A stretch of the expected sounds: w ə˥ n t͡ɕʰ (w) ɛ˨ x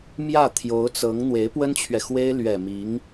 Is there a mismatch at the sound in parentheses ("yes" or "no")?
yes